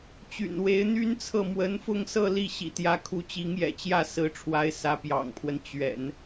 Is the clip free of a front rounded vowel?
no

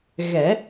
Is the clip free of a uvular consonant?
yes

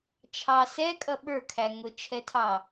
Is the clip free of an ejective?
no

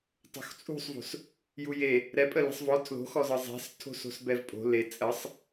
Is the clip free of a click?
yes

